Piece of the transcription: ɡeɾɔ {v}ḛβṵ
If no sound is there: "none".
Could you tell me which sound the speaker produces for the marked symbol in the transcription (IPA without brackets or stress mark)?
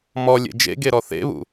θ